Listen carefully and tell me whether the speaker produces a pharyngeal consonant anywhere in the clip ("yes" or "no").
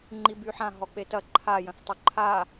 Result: yes